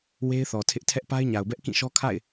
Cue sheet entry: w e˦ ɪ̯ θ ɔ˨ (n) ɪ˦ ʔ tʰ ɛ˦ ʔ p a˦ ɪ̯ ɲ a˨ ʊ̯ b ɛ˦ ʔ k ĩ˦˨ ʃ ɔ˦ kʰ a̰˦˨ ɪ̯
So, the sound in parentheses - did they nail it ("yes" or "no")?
no